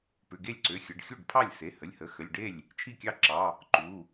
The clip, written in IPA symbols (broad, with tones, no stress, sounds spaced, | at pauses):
p ʏ˩˧˩ ɡ e˥˩ lʲ ǀ ʏ˩˧˩ xʲ ə˩˧˩ ɖ xʲ u˥˩ ɖ pʰ ɑ˥˩ lʲ s e˩˧˩ h ə˩˧˩ lʲ h ə˩˧˩ x ə˩˧˩ lʲ ɖ e˥˩ lʲ | t͡ʃʰ i˥˩ kʲ ɑ˥˩ ǁ ɑ˩˧˩ | ǃ u˩˧˩